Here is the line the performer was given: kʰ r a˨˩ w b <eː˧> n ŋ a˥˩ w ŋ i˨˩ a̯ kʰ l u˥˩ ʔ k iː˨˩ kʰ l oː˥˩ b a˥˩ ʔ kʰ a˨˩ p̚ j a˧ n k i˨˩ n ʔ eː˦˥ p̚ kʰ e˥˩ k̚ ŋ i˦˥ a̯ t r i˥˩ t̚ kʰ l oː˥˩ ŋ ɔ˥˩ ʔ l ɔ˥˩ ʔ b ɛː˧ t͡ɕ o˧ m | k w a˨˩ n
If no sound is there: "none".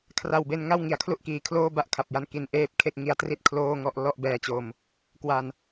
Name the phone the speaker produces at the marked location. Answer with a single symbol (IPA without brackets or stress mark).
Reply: e˧